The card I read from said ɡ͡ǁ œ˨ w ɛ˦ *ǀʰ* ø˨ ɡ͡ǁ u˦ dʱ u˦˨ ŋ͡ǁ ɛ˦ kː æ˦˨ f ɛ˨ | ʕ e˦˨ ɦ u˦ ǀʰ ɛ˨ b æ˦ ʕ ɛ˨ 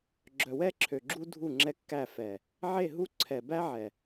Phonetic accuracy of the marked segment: incorrect: ǁʰ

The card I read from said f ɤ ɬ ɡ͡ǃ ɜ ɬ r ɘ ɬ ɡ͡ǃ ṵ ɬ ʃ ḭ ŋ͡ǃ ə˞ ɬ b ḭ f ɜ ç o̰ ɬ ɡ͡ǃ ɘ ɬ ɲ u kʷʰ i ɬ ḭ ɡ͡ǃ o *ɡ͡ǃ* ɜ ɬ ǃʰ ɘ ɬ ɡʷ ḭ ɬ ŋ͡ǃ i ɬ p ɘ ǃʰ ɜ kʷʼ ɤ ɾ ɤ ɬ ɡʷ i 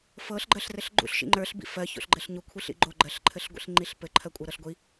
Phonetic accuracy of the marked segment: correct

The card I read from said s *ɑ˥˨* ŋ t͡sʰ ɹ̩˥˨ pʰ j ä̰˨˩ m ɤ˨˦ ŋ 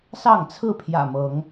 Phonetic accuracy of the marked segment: correct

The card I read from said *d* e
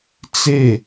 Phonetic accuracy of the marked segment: incorrect: t͡s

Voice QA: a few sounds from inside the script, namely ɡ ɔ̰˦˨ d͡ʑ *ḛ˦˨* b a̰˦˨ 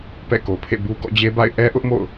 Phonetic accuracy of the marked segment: incorrect: e˦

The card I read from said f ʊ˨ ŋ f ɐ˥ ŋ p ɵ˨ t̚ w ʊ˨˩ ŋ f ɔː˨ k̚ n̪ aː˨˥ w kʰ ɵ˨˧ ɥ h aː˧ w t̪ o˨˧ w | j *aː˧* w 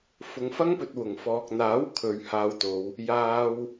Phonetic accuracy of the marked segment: correct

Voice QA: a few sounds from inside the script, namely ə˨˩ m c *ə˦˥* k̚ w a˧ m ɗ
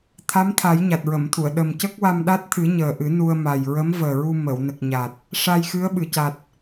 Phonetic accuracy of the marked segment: correct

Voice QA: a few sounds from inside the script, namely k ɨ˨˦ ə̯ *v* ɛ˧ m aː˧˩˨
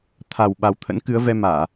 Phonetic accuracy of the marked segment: correct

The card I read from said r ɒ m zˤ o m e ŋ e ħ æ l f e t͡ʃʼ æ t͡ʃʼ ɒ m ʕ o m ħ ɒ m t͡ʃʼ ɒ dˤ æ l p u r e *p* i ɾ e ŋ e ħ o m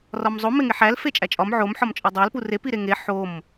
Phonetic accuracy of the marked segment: correct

